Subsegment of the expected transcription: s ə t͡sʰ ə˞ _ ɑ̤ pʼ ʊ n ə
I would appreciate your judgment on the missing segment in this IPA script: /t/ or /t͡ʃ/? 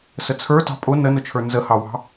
t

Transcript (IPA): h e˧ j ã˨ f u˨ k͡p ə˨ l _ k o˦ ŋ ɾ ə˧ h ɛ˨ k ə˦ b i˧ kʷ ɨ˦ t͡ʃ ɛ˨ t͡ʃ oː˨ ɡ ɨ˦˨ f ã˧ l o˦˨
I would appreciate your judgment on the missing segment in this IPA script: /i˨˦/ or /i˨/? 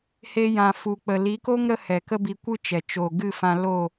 i˨˦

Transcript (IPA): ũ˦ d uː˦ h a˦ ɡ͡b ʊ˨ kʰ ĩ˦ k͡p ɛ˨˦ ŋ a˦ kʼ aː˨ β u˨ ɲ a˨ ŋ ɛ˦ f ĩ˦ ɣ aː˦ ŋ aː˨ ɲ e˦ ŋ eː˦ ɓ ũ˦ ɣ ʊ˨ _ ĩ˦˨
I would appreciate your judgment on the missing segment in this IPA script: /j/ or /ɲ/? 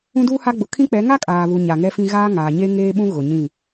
ɲ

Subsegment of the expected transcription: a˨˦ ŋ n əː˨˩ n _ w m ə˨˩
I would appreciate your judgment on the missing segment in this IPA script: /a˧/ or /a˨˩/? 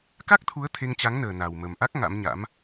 a˨˩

